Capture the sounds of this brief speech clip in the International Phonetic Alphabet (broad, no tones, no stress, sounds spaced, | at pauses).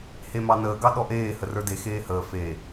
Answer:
h e m ɑ n əː ɡ ɑ ɗ ɔ ʔ eː h ə r ə˞ d e x eː h əː f e